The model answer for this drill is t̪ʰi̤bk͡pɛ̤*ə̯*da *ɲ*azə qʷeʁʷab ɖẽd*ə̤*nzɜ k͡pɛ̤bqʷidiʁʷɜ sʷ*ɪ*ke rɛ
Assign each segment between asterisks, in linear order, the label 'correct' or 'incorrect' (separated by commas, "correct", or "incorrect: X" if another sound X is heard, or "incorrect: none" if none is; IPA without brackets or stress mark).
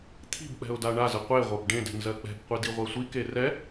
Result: incorrect: ʊ̯, incorrect: ɳ, incorrect: ɛ̤, incorrect: i